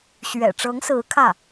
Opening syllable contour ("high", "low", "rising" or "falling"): low